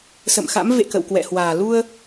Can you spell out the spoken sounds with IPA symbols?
sə̰˧˨mxa̰˧˥m vḛ˧˨ kə̰˧˨wkwɛ̰˧˨hwaː˨˩ lu˧ə̯

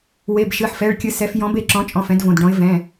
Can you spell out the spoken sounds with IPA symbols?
we˩˧˩bʃɨ˩˧˩ħfɛ˩˧˩ɭkʲɨ˨˦ sɛ˨˦f jɔ̃˨˦b e˨˦ǁɔ̃˨˦t͡ʃʼɔ̃˩˧˩f ɛ̃˨˦dvõ˩˧˩dɖɔ̃˨˦ɪ̯ vɛ̃˩˧˩

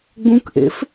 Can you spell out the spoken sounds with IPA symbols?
ɡ͡bũkʔḛf

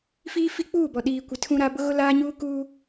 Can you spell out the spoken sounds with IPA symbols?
fiː˦fi˦ k͡puː˦˨bɔ˨ ɗiː˨ kʷɪ˨tʰũ˦ɾa˦ bʊ˦ɣʊ˦laː˦ɲuː˦ kuː˦

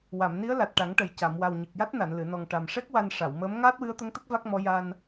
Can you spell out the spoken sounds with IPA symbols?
wa˨˩˨mni˧˥ə̯ la˨˩t̚ʈa˨˩˦ŋʈə˨˩j ca˨˩˨m wa˨˩w ɲɨ˨˩k̚ja˦˥t̚ na˨˩˨nlɨ˨˩˨nɔ˨˩ŋ ʈa˨˩mʂɛ˦˥k̚ wa˧n ʂa˨˩˨wməː˧˥m ŋaː˦˥t̚wɨ˧˥ə̯t̪ə˧˥ŋt̪ə˦˥k̚ va˦˥k̚mɔ˧˥ ja˧n

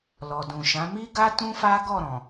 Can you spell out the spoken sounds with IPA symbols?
lɔ˨dũ˨ʃã˨˦ mi˦ɡa˦ tũ˦fa˦ɡɔ˦˨ɾɔ̃˨

